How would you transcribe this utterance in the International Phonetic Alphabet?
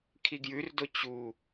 kʰiɡjʉrdo t͡ɕu

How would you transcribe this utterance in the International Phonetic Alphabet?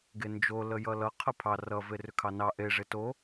ɡend͡ʒo ləjʌlʌ qʰəpʰɑ rʌ verʏkʰɑnɑ ʔe ʐeto

